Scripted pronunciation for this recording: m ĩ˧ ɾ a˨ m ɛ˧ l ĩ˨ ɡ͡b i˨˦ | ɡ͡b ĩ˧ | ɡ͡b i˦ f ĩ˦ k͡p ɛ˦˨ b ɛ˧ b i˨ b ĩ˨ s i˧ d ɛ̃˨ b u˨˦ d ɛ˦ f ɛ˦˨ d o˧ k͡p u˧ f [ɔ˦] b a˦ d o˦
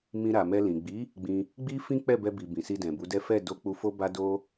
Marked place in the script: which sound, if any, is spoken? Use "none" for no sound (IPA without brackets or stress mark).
o˦